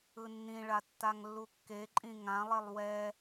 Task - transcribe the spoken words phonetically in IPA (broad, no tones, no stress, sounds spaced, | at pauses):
ɯ nː ĩ ɭ a tː a ŋ lː u kː e ǃʼ ĩ ŋ ã lˠ e lˠ w ɛ